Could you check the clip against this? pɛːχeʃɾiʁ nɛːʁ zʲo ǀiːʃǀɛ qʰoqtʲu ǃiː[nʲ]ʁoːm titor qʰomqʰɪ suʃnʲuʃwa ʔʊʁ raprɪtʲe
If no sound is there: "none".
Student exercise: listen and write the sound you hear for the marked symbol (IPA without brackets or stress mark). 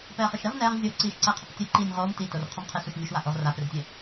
nʲ